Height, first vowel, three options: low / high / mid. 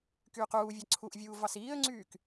high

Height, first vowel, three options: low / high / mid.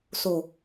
mid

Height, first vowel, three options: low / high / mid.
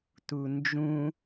high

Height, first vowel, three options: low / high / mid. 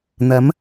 low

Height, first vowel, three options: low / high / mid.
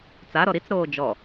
low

